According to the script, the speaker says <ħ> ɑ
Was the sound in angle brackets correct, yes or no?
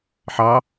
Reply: yes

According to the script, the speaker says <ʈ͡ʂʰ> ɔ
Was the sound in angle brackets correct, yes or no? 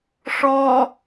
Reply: no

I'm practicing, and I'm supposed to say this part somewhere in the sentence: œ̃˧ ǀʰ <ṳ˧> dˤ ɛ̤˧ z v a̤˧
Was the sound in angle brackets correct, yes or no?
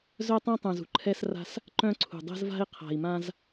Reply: no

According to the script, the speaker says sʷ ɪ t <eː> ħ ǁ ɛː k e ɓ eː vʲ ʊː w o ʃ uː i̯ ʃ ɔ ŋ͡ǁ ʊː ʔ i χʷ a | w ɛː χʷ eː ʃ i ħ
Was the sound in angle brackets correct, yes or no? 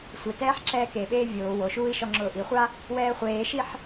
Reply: no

